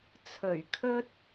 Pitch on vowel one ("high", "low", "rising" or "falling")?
low